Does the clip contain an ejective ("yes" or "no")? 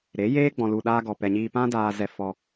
no